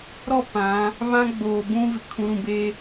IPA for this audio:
ɾɔ˦˨ pã˨˦ | βã˦ɡ͡boː˨ bũ˦vɪ˨ kʰũ˨˦ɾũ˨be˦

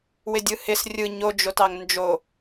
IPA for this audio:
wɪdʲɯhɪs rʲɯ ɲo d͡ʒotɑŋnd͡ʒo

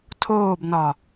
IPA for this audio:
tʰoːbnɒ

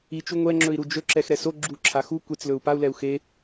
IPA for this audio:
it͡ʃu ŋʷɛŋ͡ǁɵi̯ɾu d͡ʒɵǁɛxɾɛ so ɡ͡ǁuǁʰa xu kʷet͡slɵu̯ pau̯lɛu̯ xe

